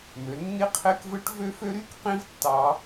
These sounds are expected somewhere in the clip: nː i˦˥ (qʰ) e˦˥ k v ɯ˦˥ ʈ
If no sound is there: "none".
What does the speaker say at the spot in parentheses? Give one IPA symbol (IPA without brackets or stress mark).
qʰ